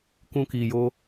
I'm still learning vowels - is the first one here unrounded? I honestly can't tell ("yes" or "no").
no